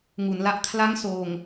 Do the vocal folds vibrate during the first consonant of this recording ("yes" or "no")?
yes